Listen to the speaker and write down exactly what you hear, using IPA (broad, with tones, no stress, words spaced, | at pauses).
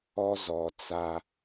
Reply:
ɔ˦zɔ˨t͡sa˨